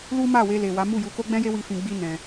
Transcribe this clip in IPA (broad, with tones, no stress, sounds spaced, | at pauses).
l u˦ m a˦˨ w e˧ l e˨ w a˨˦ m u˦˨ j u˧ k o˦ ɡ͡b ɛ̃˦ j e˦ w i˧ f ĩ˧ ɡ͡b i˦ n ɛ̃˧